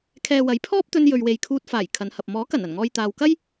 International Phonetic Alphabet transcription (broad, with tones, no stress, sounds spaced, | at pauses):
kʰ ɛː˨ w ɐ˨˥ j pʰ ɔː˥ p̚ t̪ ɵ˧ n j ɵ˨ ɥ w e˨ j kʰ uː˧ t̚ f aː˨˩ j kʰ ɐ˨˧ n h ɐ˨ p̚ m ɔː˨˥ k ɐ˨˩ n ɐ˨˩ n ŋ ɔː˨ j t̪ aː˨ w k ɐ˥ j